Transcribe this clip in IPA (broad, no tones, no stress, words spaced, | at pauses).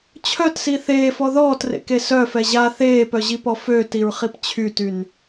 t͡ɕʰœtsi θeːfɔ ðɔːtrḛke sœfɛ ʑa θeːpœʑipɔ føtiɹχip t͡ɕʰytyn